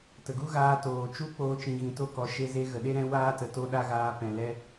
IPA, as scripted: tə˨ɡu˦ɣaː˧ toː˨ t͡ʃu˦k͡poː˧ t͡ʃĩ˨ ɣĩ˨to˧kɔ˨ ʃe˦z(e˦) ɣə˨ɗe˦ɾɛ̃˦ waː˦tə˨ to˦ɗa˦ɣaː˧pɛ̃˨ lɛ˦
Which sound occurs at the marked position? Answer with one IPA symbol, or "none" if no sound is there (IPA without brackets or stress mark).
e˦